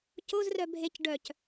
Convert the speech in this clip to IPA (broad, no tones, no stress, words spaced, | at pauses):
cozrœ bʱec ɖœc